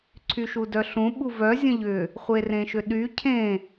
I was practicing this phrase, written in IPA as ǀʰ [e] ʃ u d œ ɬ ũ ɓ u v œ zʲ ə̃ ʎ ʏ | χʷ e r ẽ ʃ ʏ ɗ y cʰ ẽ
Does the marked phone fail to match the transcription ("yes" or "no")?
yes